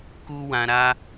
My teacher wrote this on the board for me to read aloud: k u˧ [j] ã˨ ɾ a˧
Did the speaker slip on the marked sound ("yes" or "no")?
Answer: yes